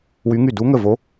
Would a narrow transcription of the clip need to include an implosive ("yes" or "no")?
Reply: no